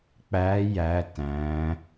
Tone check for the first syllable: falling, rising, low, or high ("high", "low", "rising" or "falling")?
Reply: rising